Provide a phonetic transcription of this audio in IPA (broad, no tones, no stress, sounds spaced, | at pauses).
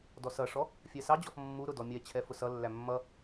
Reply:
d ɔ s ʌ ʂ ɔ | fʲ ɛ s ɑ d͡ʑ ɔ f mː u ɾ ʊ d ɔ mʲ ɛ t͡ɕʰ ɛ f ʊ s ʌ lː æ mː ʌ